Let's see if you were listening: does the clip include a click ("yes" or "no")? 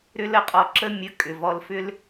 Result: yes